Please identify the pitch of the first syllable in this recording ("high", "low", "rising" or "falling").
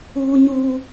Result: high